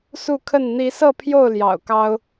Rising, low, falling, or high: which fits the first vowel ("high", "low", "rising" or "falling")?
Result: falling